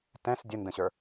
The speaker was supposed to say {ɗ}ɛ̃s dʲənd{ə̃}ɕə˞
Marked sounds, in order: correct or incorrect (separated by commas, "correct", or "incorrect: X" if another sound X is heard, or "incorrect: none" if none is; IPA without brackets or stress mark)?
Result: incorrect: t, correct